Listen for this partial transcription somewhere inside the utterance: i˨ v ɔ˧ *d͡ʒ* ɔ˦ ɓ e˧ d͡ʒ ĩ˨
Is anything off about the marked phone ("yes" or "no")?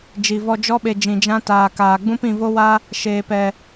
no